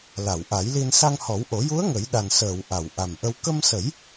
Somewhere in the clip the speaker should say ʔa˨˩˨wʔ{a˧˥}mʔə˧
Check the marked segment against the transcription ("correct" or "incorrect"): incorrect